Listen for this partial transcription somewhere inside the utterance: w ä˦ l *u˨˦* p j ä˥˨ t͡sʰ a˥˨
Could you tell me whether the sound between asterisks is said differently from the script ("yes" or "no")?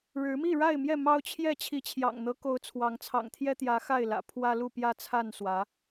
yes